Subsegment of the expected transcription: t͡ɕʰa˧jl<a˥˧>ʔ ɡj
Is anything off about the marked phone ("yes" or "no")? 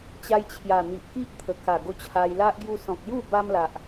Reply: yes